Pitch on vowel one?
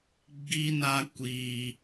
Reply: high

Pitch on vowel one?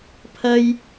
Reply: high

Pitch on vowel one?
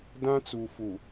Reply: high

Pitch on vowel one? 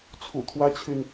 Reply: low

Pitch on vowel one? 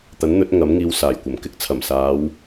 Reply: rising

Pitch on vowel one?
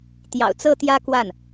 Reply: low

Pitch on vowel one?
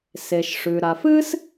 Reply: low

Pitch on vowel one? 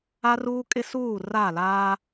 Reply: high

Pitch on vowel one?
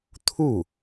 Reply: falling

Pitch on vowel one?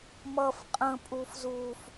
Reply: low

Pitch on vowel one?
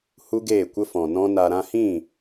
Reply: high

